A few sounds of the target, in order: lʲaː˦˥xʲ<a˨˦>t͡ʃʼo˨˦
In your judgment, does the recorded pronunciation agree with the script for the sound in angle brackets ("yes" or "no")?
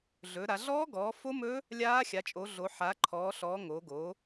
yes